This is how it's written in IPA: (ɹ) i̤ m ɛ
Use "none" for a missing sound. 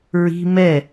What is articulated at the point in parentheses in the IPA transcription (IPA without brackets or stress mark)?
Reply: ɹ